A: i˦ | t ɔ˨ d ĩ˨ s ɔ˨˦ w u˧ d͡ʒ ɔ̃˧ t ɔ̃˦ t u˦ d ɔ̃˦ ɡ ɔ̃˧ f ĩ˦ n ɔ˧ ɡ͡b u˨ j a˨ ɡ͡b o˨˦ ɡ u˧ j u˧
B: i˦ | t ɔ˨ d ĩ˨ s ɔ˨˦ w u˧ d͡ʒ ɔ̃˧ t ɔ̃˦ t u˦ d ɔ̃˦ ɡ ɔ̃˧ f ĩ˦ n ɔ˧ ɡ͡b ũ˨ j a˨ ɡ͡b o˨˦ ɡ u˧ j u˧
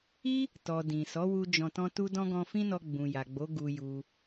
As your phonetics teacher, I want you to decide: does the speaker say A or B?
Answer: B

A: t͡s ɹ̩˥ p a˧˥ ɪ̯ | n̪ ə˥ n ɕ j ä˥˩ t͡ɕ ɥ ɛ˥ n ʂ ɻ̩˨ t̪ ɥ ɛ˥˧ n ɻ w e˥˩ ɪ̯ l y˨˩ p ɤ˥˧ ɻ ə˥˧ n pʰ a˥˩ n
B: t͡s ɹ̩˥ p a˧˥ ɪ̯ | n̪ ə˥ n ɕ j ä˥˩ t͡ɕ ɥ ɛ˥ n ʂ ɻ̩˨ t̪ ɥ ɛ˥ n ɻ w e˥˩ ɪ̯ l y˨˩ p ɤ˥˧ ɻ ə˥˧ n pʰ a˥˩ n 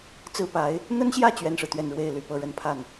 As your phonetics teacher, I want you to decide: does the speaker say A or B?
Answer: A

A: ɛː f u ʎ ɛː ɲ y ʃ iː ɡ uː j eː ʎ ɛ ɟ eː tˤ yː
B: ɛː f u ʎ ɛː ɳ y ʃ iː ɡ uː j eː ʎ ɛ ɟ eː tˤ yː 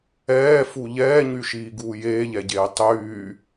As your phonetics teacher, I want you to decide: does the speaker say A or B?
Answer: A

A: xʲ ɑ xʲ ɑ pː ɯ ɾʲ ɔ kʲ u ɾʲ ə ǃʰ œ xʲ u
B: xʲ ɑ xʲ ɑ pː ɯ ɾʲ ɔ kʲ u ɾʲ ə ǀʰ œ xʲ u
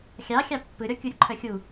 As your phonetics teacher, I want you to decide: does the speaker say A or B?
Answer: A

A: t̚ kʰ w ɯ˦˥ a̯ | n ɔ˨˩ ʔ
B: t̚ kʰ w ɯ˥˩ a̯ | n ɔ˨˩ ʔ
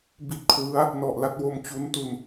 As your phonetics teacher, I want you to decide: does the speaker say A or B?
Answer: A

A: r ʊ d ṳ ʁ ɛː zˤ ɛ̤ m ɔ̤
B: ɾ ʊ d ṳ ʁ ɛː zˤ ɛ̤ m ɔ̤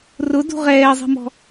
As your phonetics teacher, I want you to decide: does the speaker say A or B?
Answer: A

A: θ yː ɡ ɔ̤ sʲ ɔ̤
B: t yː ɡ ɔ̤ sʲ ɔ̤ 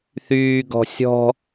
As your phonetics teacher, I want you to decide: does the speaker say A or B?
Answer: A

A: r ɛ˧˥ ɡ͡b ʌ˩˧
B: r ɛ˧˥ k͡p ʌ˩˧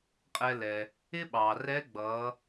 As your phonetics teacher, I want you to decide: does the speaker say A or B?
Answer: A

